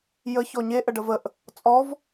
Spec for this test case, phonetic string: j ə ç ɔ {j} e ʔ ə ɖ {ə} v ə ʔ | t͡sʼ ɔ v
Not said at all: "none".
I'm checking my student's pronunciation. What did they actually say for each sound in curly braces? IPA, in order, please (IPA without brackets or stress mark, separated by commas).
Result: ɲ, ə